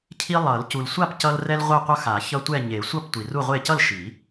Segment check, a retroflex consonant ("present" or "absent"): absent